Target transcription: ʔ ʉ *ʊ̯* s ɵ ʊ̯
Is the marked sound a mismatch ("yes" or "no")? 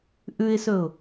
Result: yes